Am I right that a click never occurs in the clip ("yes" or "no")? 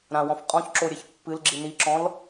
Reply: no